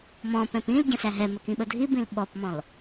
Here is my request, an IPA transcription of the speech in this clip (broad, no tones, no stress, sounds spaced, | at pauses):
m ɔ̃ p ɛ̃ p ĩ l ɟ ə̃ s æ ɦ ɛ m ə k ĩ ɓ ə dʱ i b ĩ l ɓ ɔ p m ɔ̃ l